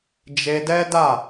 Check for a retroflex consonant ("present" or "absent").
absent